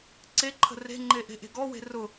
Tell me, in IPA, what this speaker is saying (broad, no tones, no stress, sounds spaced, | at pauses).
ǀ e ǃʰ ə̤ r e̤ ŋ͡ǃ e ʔ e̤ ʔ e̤ ɡ ɔ w e̤ r ʊ